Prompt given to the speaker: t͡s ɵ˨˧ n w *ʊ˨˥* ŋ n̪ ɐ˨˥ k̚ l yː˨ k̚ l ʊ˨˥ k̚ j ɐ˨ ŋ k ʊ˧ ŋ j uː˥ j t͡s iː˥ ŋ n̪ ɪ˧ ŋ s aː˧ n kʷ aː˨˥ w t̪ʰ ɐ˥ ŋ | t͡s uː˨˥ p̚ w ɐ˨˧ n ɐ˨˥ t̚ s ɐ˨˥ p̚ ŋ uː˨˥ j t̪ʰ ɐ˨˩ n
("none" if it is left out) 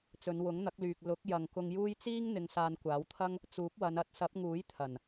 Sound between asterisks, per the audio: ʊ˨˥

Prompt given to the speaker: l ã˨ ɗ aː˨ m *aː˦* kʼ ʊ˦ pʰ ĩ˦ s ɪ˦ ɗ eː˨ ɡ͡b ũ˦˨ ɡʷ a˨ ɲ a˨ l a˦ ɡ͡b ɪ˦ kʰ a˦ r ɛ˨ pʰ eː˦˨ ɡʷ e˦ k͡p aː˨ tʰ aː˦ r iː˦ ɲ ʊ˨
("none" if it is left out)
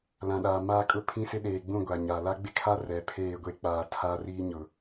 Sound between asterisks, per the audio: aː˦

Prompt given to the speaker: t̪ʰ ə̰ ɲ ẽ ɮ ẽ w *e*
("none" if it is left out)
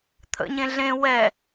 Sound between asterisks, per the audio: ɛ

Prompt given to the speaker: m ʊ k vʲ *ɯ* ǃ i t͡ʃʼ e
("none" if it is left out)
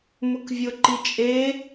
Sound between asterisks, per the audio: ʊ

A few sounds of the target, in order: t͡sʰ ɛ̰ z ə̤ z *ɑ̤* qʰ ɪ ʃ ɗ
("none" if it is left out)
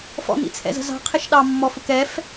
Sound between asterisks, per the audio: ɑ̤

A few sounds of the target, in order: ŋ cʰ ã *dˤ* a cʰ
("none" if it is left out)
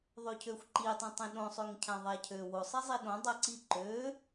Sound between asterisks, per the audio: ðˤ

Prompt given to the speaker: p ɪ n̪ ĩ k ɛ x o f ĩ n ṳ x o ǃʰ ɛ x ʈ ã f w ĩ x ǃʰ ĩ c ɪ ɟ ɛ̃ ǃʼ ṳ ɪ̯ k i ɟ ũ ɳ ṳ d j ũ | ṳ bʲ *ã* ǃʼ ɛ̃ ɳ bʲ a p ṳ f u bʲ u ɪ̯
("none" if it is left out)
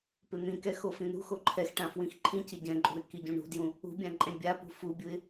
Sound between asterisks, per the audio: ã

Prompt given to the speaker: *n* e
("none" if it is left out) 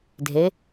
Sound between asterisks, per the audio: dʱ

